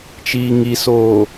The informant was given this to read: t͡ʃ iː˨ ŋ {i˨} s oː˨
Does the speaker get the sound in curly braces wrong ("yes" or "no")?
no